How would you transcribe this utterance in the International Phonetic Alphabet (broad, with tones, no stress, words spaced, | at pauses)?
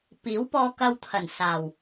piː˨˥wpɔː˧kɐ˧wt̪ʰɐ˨˩n saː˨˩w